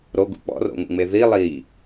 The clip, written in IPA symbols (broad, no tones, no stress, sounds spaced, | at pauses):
ɾ o ɡ ṵ k͡p ɔ̰ r o̰ ŋ ṵ ŋ͡m e ð i lˠ i